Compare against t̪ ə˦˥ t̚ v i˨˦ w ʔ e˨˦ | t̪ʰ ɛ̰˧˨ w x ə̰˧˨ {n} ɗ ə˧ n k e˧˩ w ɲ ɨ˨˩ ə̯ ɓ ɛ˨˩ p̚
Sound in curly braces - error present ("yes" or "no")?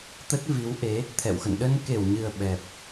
no